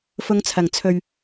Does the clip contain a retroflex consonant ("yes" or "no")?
no